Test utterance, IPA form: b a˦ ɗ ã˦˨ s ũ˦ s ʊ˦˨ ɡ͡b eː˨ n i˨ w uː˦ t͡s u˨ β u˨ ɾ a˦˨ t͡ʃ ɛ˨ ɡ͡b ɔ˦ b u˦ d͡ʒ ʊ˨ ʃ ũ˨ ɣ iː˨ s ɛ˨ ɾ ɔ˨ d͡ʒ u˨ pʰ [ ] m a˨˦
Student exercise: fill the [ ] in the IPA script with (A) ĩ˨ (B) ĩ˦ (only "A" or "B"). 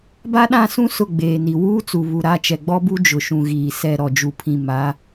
A